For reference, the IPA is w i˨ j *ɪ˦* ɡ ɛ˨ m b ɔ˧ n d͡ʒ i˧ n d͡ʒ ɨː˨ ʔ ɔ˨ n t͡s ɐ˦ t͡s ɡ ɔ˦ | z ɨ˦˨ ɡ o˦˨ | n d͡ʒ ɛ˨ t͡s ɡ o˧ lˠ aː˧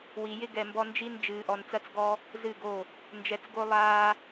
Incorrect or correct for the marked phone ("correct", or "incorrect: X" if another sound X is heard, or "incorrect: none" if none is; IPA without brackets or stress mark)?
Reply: correct